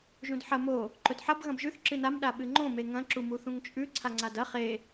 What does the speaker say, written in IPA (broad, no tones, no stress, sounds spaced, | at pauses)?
ʒ ũ d ħ ɐ m o | ǃ ɵ d ħ ɐ b ɣ ɐ̃ b ʒ ʉ θ ǁ ɨ n a m ɗ a ɓ ɨ ŋ͡ǃ õ m e ŋ ɐ̃ ǁ u m u θ ũ ŋ t͡ʃʼ ʉ ǀʰ a ŋ͡ǀ a d ɐ χ e